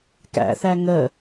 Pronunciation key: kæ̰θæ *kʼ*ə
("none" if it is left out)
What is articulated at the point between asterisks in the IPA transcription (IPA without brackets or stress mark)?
ŋ